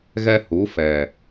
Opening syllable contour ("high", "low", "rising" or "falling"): high